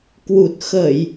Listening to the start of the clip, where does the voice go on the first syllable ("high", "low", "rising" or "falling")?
low